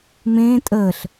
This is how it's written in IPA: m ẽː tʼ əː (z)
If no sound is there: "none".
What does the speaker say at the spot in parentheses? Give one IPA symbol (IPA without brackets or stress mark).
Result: ɬ